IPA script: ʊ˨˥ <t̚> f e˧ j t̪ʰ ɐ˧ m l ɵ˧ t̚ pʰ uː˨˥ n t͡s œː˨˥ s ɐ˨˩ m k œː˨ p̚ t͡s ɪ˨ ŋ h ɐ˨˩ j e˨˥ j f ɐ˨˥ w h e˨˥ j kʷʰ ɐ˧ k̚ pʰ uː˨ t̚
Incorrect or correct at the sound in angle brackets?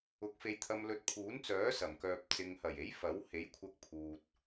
incorrect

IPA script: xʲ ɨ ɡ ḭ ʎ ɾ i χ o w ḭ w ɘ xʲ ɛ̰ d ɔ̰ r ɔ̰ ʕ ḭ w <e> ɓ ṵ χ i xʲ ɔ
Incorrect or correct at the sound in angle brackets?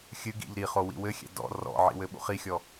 incorrect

